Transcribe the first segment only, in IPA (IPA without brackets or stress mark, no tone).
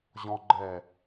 ʑ